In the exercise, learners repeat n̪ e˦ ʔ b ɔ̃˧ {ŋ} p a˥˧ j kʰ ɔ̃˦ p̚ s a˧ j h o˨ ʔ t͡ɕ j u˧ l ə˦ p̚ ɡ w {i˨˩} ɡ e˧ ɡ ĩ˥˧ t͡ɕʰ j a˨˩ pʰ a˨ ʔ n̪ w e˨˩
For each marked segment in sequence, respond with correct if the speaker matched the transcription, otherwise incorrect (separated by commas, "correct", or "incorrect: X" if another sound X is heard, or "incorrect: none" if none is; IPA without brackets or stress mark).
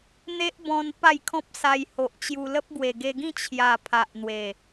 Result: incorrect: n, incorrect: e˨˩